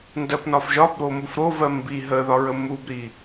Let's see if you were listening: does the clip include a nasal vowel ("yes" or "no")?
no